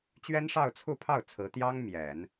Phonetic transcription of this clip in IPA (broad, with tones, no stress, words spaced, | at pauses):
t͡ɕɥɛ˥nʂɑ˥˧ʊ̯t͡sʰu˥˧pʰɑ˥˩ʊ̯ t͡sʰɹ̩˧˥ t̪jɑ˥ŋ mjɛ˨˩˦n